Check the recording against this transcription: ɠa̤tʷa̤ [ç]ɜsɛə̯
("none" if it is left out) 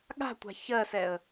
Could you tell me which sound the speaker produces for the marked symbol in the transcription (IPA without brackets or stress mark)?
ç